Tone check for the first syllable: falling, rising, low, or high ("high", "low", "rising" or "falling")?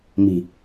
low